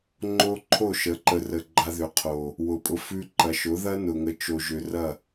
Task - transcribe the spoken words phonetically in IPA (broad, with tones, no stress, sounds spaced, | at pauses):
ŋ͡ǃ o˦ ǃʰ o˦˨ ʃ ə˨˦ ǃ ə˨ r ə˨ ɡ͡ǃ a˧ ð ʏ˨ qʰ o˨ | w ʊ˨ pʼ ʊ˧ f ʉ˧ ǃ ɐ˨ ʃ ʊ˨˦ ð ɐ˦ n ʊ˨ ŋ ə˨˦ t͡ʃ o˨ ʒ ʏ˨ r ɐ˦˨